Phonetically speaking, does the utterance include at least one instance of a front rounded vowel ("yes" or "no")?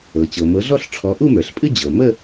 no